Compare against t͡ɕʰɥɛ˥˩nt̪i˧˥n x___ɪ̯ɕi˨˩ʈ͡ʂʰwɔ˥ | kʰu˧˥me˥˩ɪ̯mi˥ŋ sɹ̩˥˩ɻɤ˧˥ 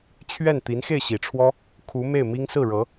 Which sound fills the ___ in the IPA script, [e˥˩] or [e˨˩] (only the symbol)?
e˥˩